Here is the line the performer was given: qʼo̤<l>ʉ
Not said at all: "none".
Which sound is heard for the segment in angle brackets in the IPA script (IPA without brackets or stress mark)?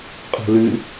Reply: l